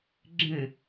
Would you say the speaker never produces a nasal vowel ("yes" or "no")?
no